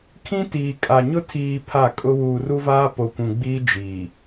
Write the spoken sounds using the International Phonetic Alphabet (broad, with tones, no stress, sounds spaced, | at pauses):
kʰ ĩ˦ t iː˨ kʼ a˨ ɲ ʊ˦ tʰ iː˨ pʰ a˦˨ kʼ ʊ˦ w uː˨ r u˦ v aː˦ p o˨ kʷ ũ˨ ɡ͡b iː˦ d͡ʒ iː˨